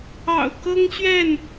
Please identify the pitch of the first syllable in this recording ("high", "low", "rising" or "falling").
low